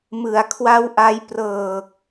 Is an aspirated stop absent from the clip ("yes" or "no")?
no